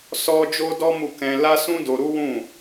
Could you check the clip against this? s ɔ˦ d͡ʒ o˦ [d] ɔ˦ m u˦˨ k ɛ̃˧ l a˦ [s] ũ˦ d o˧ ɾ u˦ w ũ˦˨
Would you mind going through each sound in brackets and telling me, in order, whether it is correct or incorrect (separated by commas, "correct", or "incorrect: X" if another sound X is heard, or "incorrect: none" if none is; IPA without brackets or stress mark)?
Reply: correct, correct